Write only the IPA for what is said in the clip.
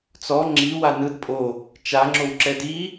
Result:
t͡s ɔ ŋ͡ǁ i w a n ɯ d pʼ o | t͡ʃ a ŋ͡ǁ o w ǁ ɛ d i

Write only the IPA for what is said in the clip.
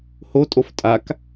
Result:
h o tʼ o f tʼ a k

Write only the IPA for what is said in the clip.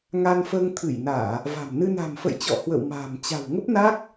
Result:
ŋ a˧ n f əː˧ ŋ t̪ʰ ɨ˧˩ j n aː˧˩˨ | v a̤˨˩ m n ɨ˧ n a̤˨˩ m f ə̰˧˨ j t͡ɕ ɔ̰˧˨ h w ə̰˧˨ w m a̤ː˨˩ m t͡ɕ a̤˨˩ w ŋ ə˦˥ p̚ n aː˦˥ k̚

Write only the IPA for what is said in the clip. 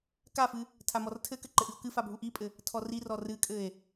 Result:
k a f ɨ | tʰ a m ɔ r tʰ ɘ k ɘ ǃ ɘ ʔ ɨ o̯ k ɨ f a bʱ u ʔ i pʼ ɘ | tʰ ɔ r i r ɔ r ɨ kʼ ɘ e̯

